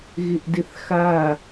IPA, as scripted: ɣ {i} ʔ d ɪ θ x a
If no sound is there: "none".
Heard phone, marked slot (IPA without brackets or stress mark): ɪ